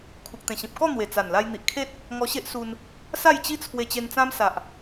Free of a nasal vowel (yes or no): no